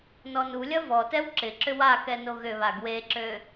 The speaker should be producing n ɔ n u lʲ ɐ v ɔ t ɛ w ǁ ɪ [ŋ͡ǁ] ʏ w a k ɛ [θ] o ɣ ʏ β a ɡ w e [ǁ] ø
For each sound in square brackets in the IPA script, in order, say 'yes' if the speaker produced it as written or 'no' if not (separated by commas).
no, no, yes